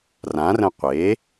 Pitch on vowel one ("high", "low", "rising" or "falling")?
rising